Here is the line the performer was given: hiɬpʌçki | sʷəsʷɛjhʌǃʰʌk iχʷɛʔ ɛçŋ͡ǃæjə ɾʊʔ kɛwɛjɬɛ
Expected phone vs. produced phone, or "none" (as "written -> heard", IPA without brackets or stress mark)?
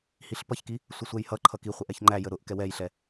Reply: none